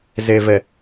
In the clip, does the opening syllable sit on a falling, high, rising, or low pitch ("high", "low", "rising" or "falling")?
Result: low